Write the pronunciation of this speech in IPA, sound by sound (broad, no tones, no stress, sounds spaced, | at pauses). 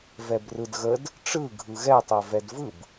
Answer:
v ɛ b r ɯ d ɣ ə d | ʈ͡ʂ ɯ ɡʱ ɯ ɣ ɛ tˤ ɛ v ɛ d v ɯ b